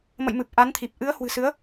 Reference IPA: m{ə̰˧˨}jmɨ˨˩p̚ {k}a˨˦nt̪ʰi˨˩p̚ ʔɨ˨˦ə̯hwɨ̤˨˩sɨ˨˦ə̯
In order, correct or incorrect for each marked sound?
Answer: correct, incorrect

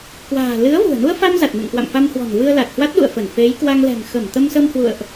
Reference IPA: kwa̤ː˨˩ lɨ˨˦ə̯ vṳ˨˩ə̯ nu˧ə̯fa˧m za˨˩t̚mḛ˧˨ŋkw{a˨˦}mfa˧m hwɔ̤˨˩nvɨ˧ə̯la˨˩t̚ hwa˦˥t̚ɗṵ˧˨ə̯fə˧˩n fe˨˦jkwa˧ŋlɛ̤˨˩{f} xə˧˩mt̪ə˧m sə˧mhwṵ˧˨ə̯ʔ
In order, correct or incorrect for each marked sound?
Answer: incorrect, incorrect

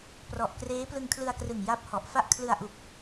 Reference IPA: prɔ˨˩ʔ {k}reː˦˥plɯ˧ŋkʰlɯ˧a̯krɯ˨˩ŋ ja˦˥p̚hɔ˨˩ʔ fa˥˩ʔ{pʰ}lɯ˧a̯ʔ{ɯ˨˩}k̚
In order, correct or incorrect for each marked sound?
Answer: correct, incorrect, incorrect

